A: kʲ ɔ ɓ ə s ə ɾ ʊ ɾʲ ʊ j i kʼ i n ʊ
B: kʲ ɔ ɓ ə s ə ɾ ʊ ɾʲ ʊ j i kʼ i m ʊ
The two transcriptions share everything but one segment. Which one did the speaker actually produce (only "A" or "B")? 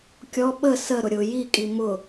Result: B